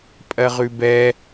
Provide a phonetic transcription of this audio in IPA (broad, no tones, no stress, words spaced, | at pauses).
pʼɜʁʉbɛ